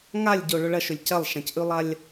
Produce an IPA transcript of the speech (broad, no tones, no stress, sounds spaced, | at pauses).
ŋ a lʲ ɟ o ɭ ɵ ɭ ɐ ʃ ɵ lʲ c ɐ lˠ ʃ ã c ʔ ʉ lˠ a lʲ